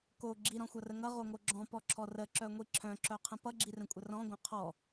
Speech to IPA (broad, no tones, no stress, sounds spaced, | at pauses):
k o ɡ͡ǁ i ɾ ɔ̃ xʷ ʌ r ə ŋ ʌ ʁ o ŋ o ɡ͡ǁ ɔ̃ p ɔ ǁʰ ɔ r ə ǁ œ ŋʷ i ǁʰ œ̃ ǁ œ qʰ ə̃ p ʌ ɡ͡ǁ i r ə̃ kʷʼ ə r ɔ̃ ɡʷ œ̃ qʰ ɔ